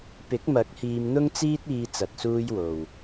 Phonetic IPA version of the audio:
p ɪ˨˥ k̚ m ɐ˨˥ k̚ h iː˧ m n̪ ʊ˥ ŋ t͡s iː˥ t̚ iː˧ t͡s ɐ˨ t̚ s uː˧ j w o˨ w

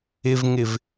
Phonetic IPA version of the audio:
ɪ v ŋ ɪ v

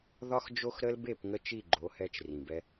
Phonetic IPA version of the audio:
ð ɒ˦ x d͡ʒ o˦ x ɾ ə˦ l b e˦˨ p ŋ ə˧ t͡ʃ i˦˨ ɡ͡ǃ o˨˦ h ɛ˧ t͡ʃ r ĩ˨ b ɛ˧

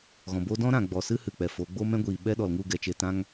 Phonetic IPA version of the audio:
ɣ ɔ̃˨ b o˦ d ɔ̃˦ ɾ ã˨ ɡ͡b ɔ˨ s ɨ˦ h ɨ˨ k͡p ɛ˨ f o˨˦ ɡ͡b o˦ m ɛ̃˦ ɡʷ iː˨ ɓ ɛ˦ ɗ ɔ˨ l ŋ u˦˨ ɡ ɛ˨ t͡ʃ e˧ t ã˦ ŋ

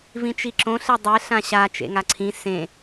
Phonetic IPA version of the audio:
v ĩ t͡ʃ i ǁ õ ɬ e dˤ e ɬ ã ɕ a t͡ʃ ḛ ŋ a ǀʰ ĩ s ẽ

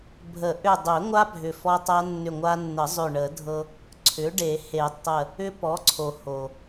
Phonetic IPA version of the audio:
bʱ ə˨˩˦ ʔ ʏ˧˩ dˤ ʏ˨˩˦ ŋʷ a˦˥ bʱ ʏ˧˩ f ɔ˦˥ tˤ a˦˥ nː ʏ˧˩ ŋʷ a˧ nː ə˨˩˦ zˤ ʏ˧˩ ɳ ə˨˩˦ dʱ ɤ˧ | ǀʰ ʏ˩˥ ɖ e˨˩˦ h e˨˩˦ tˤ ə˧˩ | ʏ˦˥ p ɔ˩˥ ǀʰ o˩ h o˩

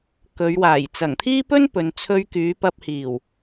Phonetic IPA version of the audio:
k ɵ˨˧ ɥ w aː˨˩ j t͡s ɐ˨˩ ŋ t̪ʰ iː˥ p ɵ˥ n p ɵ˨ n t͡sʰ ɵ˧ ɥ k yː˨˧ p ɐ˧ p̚ h iː˨˩ w

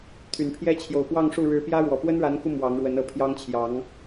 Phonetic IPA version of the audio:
t̪ʰ y˨˩ n pʰ j ɛ˦ t͡ɕʰ j o˨˩ ʊ̯ p w ɑ˥˨ ŋ ʂ u˥˨ ɻ ɻ̩˨˦ p j ä˦ ɻ w ɔ˨˩ p w ə˦ n ɻ a˨˦ n k u˧ m w ɑ˨˦ ŋ ɻ w ə˨˦ n ɤ˨˩ pʰ j ɑ˦ ŋ t͡ɕʰ j ɑ˨˦ ŋ

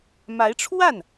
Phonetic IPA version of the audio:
m a˧˥ ɪ̯ ʈ͡ʂʰ w a˥˩ n

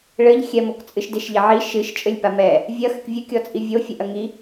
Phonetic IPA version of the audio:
ɭ ɘ ʎ xʲ ɛ m o k t͡sʼ ɨ ʃ d e ʃ ʎ ɐ ʕ i ʃ ɨ ʃ t͡ʃʼ ɘ lʲ p a m ɛ | vʲ ɐ x ɘ k vʲ ɨ kʲ ɔ t͡sʼ i vʲ o fʲ ɘ ʔ ɐ ŋ i

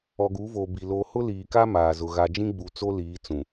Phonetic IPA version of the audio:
ɔ˨ ɡ uː˨˦ v oː˨ b i˨ l o˨ h ʊ˦ l iː˨ k a˦ m aː˨ z ʊ˨ ɣ a˨ d͡ʒ ĩ˦ ɡ͡b u˨ t͡s o˦ l iː˨˦ t͡s ũ˨

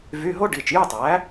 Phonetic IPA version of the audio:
v y˧˥˧ ɦ o˥ ɖ i˩˧˩ t͡ʃ j y˥˧ tˤ æ˩˥

